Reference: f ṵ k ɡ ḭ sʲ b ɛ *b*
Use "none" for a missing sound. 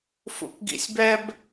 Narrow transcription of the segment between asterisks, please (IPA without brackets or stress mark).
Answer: b